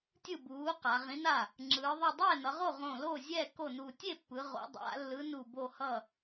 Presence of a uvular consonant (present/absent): present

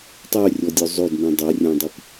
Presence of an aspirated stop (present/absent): absent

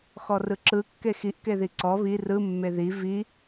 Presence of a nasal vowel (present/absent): absent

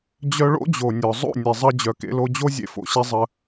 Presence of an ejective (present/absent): absent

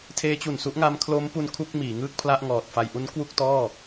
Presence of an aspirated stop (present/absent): present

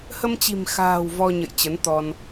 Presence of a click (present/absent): absent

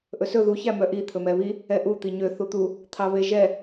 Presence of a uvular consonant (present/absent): absent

